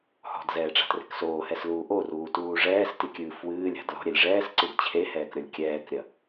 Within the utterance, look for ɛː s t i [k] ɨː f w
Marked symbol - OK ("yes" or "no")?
no